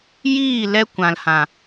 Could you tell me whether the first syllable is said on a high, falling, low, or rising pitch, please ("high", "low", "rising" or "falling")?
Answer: falling